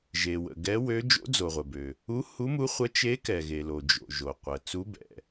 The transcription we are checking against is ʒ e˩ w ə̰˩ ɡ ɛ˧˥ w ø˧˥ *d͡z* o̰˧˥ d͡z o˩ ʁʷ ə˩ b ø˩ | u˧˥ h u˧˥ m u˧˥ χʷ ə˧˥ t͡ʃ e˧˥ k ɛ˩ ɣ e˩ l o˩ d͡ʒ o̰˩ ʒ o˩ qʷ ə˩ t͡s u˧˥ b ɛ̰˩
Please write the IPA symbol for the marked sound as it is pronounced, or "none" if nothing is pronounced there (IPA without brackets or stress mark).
d͡ʒ